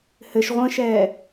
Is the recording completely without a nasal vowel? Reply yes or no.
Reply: no